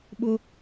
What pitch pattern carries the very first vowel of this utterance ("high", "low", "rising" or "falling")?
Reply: high